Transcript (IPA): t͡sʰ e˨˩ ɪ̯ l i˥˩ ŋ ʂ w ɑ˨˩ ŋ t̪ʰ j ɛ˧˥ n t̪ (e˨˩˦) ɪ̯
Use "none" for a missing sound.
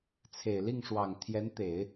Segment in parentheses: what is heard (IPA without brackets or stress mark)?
e˨˩˦